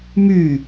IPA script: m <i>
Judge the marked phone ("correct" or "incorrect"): incorrect